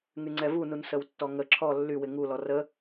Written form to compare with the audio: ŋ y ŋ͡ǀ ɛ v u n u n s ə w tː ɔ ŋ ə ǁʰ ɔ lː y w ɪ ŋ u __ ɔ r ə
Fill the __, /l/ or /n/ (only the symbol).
l